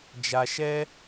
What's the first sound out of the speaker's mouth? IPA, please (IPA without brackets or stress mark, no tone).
d͡ʒ